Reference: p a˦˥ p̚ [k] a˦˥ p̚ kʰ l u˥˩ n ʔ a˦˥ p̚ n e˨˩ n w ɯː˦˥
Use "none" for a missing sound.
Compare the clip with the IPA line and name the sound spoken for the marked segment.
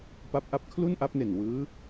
ʔ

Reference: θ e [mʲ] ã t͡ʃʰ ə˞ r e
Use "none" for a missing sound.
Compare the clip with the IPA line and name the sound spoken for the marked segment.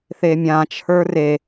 mʲ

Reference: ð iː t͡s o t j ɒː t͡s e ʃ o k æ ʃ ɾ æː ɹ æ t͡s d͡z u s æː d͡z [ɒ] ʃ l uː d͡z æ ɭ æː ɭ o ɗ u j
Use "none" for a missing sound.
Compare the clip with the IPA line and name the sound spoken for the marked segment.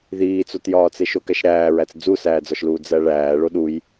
ɒ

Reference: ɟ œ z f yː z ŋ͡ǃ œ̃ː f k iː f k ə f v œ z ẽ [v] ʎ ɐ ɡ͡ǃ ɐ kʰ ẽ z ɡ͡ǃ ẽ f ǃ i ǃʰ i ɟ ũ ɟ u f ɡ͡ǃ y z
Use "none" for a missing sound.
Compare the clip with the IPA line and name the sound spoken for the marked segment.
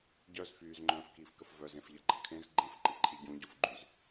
f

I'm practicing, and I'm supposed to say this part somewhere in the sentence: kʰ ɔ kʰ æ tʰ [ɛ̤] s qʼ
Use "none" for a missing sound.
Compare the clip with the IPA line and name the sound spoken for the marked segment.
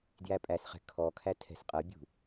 ɛ̤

